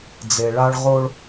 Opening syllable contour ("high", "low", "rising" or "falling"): low